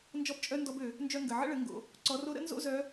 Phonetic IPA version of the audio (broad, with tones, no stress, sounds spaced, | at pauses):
n d͡ʒ ɔ˧˥ b t͡ʃʼ œ˧˥ n d ɔ˧ b ø˩ | n d͡ʒ œ˧ ŋ ɡ ə˩ ʕ ə̰˧˥ ɭ ə˩˧ ŋ ɡ o̰˩ | ǀ ɔ˩˧ r o˧ ɾ ə̰˧˥ n z o̰˥ z œ˧˥